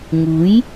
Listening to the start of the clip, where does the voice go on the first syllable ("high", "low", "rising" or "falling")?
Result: rising